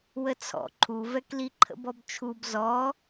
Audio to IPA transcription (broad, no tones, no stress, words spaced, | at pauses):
wət͡sʰɔ̰ ǃʰuvɛkli ǃʰə̰bɔbt͡ʃʰub zɔ